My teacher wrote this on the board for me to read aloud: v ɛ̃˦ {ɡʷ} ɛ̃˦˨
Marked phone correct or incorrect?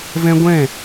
correct